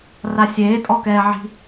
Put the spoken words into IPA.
rasʲeː tʼɔkɛːʕi̤

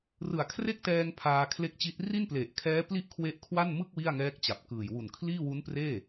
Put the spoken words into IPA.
rɯ˨˩a̯kʰre˥˩k̚tɛː˧ŋ pʰaː˧kʰle˦˥k̚t͡ɕi˦˥t̚ ri˥˩nple˨˩ʔkʰɛː˦˥ pli˥˩ʔkʰwe˦˥ʔkʰwa˥˩n mɯ˥˩k̚ wi˥˩a̯ŋɛː˦˥k̚t͡ɕa˨˩p̚ kɯː˨˩j wu˨˩nkʰliː˥˩ wu˦˥n preː˥˩

